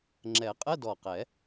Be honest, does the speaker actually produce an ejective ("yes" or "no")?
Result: yes